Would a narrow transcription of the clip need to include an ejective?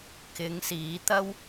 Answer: no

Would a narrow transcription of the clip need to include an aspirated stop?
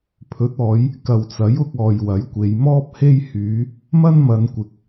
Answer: yes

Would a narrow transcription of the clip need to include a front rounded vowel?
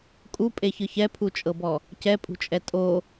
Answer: no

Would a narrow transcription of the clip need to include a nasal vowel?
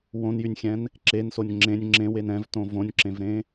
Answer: yes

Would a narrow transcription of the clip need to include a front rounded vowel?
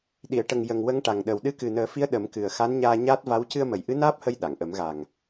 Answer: no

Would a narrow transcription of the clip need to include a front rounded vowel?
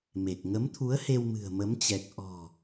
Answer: no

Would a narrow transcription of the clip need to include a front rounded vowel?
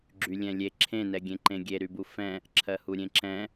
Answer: yes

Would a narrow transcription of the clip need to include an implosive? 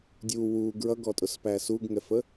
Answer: no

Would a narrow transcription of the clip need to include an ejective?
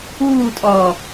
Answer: yes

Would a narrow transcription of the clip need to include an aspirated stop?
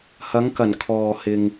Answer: yes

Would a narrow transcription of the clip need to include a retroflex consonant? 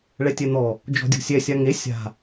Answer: yes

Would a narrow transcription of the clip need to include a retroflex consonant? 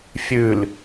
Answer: no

